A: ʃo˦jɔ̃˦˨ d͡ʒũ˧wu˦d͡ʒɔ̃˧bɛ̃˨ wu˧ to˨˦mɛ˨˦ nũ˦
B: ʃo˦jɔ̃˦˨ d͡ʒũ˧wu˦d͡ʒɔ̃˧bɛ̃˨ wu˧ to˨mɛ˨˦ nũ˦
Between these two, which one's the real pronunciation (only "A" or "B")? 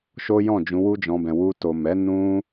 B